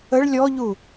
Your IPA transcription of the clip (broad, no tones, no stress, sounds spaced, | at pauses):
ə ɭ lʲ ɔ ʎ u